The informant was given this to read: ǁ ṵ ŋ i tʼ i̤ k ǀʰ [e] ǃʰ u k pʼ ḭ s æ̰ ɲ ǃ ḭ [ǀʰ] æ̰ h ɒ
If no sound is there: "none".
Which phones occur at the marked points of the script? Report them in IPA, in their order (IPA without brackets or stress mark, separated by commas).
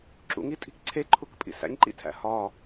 e, tʰ